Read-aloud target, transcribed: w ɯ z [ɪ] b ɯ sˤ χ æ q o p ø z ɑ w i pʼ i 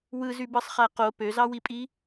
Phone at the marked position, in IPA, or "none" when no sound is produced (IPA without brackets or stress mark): y